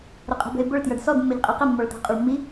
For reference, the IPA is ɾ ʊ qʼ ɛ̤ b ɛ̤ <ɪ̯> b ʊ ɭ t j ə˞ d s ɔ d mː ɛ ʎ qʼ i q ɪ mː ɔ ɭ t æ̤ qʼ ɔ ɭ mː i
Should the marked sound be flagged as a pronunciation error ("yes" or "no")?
no